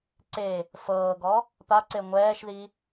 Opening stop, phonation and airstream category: click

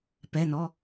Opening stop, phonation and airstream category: plain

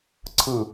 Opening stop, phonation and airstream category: click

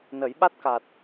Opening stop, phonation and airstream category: implosive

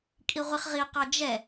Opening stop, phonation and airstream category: ejective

